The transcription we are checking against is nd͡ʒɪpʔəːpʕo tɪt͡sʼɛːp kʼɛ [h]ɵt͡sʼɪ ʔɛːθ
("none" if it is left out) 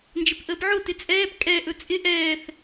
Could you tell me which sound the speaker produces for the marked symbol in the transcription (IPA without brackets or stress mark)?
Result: ʔ